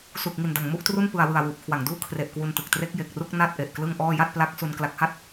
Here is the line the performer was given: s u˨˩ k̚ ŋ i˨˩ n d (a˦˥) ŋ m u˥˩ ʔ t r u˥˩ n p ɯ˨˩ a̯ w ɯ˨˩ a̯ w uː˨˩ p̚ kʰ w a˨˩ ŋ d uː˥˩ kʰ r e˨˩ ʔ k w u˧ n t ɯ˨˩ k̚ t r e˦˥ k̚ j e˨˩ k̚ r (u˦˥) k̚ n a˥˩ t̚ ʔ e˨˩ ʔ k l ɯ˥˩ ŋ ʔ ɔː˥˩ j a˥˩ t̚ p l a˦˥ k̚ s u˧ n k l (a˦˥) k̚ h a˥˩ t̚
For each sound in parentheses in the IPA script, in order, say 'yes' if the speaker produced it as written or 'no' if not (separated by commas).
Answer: no, no, yes